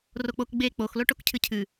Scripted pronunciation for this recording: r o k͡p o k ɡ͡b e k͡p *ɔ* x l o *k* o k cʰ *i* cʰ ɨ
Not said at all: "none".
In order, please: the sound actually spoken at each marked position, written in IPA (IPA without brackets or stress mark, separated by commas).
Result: o, ʈ, ɨ